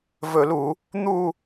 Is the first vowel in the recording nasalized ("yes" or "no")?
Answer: no